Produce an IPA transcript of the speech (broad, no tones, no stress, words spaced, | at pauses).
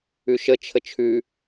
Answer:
ʉʃə t͡ʃʰət͡ʃʰʉ